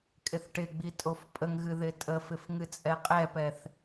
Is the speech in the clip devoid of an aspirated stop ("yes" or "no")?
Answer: yes